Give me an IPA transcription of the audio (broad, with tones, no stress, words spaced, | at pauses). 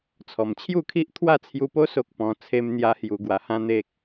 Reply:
t͡sʰɔ˨˩mt͡ɕʰju˥˧kʰi˦ʔ t̪ʰwa˥˧t͡sʰju˧po˦ so˦k̚pɔ̃˧ t͡sʰe˧mn̪ja˧ hju˧ɡwa˧hã˦n̪e˦k̚